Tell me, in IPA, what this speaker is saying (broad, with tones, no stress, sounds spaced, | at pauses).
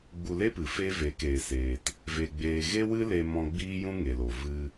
ɡ͡b u˧ l e˦ p ɨ˨ f e˦ v e˨˦ k eː˨ s eː˨ t | v e˧ ɡ͡b eː˧ ɣ e˦ w ɨ˦ l e˧ m ɔ̃˧ ɡ͡b iː˦ j ũ˦ ŋ e˨ l o˨ v ɨ˧